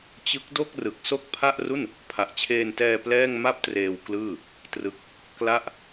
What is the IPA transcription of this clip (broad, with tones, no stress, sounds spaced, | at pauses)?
t͡ɕ ɯ˦˥ k̚ d o˥˩ k̚ r ɯ˨˩ k̚ s o˥˩ k̚ pʰ a˥˩ ʔ r u˥˩ n | pʰ a˨˩ ʔ t͡ɕʰ eː˧ n t ɛː˧ p l ɛː˥˩ ŋ m a˥˩ p̚ t r eː˧ w k l ɯː˥˩ | t r ɯ˦˥ k̚ | k l a˥˩ ʔ